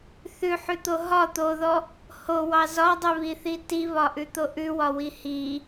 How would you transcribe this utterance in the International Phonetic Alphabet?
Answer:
θʉħʉt̪o ɦɒ t̪oðɔ | howɑ zɒdˤʉβiθi tiβɒʔʉt̪o ʔʉwɒwi hi

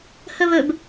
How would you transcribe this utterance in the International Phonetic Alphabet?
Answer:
hɵβɵb

